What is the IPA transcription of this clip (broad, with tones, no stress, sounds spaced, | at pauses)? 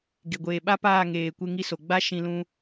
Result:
ɡ e˨ ɡʷ eː˨ ɓ a˦ p aː˦˨ ŋ eː˨ kʷ e˧ ŋ i˧ s o˨ ɡ͡b a˦ ʃ ĩ˧ l ũ˧